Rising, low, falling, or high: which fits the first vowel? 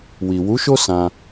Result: low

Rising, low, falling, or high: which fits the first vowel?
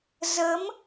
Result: rising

